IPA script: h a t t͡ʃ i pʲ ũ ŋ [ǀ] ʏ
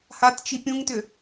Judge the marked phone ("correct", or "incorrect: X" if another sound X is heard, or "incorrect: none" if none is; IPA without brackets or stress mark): incorrect: t